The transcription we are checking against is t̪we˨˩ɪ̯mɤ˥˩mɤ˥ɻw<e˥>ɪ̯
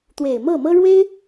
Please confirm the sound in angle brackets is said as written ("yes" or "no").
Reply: yes